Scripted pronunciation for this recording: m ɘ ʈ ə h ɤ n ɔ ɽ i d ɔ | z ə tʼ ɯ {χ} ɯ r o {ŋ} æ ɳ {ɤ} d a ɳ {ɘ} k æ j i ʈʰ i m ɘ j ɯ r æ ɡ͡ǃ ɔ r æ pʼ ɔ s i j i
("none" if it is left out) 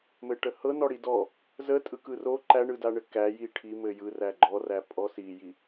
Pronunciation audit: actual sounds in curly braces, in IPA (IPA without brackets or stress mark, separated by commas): k, ǃ, ɯ, ɘ